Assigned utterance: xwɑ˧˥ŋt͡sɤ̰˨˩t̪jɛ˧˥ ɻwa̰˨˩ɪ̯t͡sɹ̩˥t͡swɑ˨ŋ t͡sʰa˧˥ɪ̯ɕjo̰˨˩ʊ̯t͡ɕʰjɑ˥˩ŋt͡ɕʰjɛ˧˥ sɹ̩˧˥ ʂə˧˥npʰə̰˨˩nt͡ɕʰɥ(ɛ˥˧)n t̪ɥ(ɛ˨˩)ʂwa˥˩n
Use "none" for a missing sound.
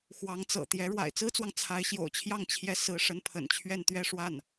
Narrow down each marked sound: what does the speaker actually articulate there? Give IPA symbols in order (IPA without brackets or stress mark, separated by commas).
ɛ˥˧, ɛ˥˧